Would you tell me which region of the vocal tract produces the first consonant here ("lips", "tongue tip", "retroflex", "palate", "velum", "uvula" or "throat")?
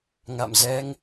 velum